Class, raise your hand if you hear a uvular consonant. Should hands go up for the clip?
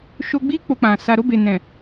no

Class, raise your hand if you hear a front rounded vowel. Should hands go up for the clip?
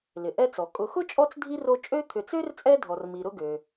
yes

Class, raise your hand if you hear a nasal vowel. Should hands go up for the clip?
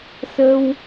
no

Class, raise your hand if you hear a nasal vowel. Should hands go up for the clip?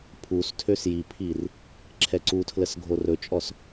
no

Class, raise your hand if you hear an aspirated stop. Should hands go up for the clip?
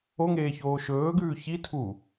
yes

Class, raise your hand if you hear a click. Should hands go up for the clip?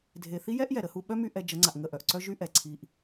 yes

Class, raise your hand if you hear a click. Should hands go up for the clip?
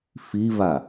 no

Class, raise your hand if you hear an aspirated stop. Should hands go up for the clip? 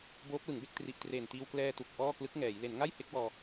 no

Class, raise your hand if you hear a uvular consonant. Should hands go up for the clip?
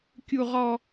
yes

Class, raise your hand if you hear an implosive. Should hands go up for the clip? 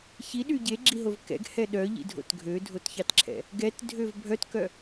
yes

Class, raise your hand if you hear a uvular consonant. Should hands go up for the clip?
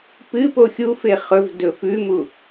yes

